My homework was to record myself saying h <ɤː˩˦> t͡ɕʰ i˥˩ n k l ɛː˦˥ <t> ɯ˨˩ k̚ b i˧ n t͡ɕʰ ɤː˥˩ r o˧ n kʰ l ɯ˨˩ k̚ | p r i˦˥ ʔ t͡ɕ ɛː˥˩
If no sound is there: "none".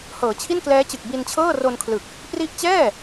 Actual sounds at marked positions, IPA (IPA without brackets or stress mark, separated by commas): ɤː˩˦, t͡ɕ